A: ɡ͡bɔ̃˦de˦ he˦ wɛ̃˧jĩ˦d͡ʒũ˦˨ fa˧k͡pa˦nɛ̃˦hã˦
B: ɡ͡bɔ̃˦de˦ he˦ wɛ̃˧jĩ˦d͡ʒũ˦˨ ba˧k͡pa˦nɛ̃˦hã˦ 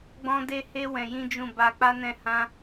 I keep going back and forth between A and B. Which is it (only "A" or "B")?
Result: B